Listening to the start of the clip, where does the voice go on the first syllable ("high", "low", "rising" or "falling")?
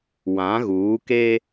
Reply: rising